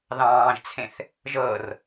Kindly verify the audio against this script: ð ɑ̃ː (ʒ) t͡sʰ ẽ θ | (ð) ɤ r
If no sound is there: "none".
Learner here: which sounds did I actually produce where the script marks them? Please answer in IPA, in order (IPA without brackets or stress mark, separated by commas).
ʒ, ʒ